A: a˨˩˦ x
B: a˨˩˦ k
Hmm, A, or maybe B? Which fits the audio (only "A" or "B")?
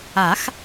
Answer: A